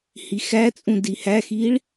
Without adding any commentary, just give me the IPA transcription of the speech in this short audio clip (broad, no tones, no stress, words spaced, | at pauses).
hixæt͡sʼũ dihæxiɭ